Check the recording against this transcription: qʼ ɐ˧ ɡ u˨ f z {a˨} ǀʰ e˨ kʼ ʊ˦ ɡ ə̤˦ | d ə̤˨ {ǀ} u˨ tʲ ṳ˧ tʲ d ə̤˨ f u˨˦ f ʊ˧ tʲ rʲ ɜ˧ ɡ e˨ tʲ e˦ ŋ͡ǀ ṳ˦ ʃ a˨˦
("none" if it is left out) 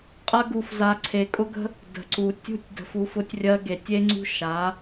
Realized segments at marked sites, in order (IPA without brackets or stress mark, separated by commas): a˨, ǀ